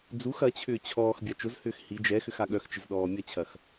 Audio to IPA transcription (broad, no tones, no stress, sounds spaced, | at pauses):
d͡z u x ɐ t͡ɕʰ ʏː t͡ɕʰ ɔː x bʲ a t͡ʃ ʊ z h ʏː x h i d͡ʒ ɛ x ʏ x a ɠ œ x t͡ʃ ɪ z ɗ ɔː mʲ ɐ t͡ɕʰ ɐ x